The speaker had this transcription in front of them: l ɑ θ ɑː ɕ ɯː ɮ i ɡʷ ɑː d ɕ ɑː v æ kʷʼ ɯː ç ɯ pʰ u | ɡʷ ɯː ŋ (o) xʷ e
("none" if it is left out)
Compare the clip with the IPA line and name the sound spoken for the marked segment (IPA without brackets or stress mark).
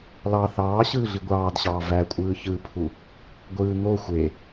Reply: o